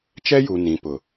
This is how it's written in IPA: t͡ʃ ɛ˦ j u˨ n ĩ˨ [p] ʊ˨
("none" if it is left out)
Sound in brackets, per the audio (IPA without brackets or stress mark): p